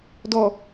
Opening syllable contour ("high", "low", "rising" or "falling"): low